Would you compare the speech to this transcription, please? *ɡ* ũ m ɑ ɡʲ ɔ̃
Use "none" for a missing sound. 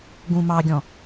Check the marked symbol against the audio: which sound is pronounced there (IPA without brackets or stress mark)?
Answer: ɡ